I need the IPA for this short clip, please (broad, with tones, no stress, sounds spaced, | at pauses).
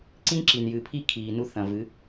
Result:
ǀ ĩ˦ ǁ i˨ n j ɨ˨ pʰ i˦˨ kʰ iː˨ n u˧ θ ɐ̃˨ v ɨ˨˦